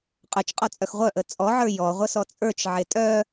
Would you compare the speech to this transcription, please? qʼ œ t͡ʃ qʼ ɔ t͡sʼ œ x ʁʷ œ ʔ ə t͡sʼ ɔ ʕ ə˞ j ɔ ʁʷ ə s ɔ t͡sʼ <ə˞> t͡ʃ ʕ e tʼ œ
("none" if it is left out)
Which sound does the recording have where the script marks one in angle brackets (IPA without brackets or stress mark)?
ə˞